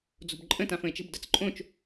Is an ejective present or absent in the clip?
present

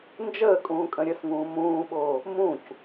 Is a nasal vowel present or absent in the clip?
present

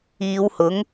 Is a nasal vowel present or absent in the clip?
absent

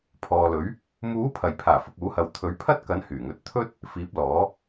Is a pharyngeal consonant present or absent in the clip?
absent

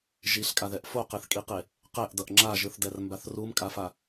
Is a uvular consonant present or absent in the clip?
present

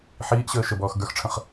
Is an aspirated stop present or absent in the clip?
present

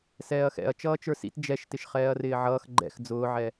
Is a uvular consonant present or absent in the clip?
present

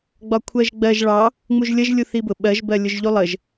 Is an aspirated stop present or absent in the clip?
present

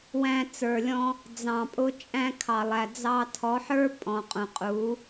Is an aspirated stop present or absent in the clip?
present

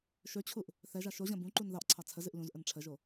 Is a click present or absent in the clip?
present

